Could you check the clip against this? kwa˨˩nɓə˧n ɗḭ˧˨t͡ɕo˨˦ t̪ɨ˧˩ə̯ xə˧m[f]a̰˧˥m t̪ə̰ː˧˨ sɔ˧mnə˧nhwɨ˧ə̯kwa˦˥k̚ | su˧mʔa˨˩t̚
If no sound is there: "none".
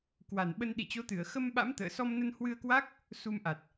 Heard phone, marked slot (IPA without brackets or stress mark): ɓ